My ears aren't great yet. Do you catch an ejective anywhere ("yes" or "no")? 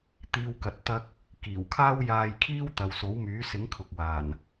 no